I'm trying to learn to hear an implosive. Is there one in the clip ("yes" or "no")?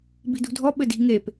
yes